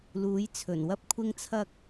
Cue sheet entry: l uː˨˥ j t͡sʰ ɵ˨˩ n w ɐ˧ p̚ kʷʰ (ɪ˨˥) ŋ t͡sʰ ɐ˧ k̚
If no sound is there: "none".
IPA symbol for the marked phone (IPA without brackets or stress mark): ɪ˧